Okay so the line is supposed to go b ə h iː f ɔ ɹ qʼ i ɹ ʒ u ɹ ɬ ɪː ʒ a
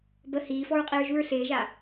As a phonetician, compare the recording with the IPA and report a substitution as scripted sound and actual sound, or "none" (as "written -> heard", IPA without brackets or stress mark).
none